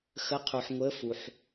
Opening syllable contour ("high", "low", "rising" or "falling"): rising